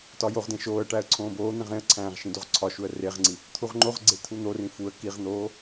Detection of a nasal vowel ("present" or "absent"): present